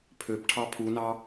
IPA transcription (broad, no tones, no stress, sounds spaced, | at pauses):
pʰ ø p ʈʰ ɑ pʰ u n ɑ